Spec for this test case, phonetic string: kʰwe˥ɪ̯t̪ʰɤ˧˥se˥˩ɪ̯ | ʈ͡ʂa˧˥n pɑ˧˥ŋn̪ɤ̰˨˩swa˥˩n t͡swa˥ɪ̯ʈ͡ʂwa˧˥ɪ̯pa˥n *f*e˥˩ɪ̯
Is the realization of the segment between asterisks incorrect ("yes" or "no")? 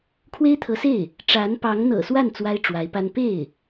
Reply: yes